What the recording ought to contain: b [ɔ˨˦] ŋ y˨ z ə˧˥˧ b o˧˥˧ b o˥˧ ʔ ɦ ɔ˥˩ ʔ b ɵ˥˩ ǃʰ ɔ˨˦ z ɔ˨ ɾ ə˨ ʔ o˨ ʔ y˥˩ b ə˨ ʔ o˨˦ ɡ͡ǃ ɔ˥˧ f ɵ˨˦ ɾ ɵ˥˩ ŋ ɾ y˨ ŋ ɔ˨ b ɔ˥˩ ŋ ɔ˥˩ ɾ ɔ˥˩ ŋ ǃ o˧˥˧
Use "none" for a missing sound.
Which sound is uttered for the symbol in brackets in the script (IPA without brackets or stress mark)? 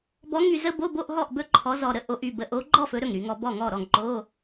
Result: ɔ˨˦